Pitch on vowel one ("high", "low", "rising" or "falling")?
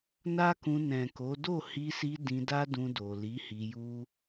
high